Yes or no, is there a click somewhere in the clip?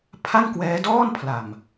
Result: no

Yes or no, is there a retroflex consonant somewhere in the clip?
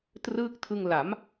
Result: no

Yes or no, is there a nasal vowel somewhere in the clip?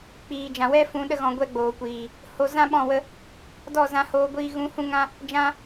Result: yes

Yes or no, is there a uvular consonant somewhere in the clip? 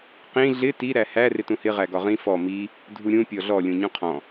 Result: yes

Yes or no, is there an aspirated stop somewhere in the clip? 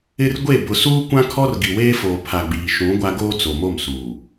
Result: yes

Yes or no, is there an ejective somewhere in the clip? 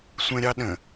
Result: no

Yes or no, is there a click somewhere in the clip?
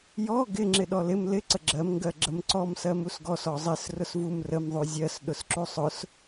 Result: yes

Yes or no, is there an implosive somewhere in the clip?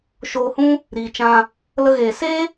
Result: no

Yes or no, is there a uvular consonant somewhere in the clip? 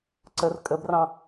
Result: no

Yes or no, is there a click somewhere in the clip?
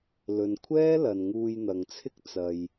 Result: no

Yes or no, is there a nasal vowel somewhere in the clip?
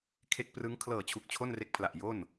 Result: no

